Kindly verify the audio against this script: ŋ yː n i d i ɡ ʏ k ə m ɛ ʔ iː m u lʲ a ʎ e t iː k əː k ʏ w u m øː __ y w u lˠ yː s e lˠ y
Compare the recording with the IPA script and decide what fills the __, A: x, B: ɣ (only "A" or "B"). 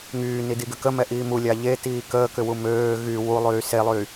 B